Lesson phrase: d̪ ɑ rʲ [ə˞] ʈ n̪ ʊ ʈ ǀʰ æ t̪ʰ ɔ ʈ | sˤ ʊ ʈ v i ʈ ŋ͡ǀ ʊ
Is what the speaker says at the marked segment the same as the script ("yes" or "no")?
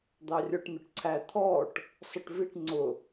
yes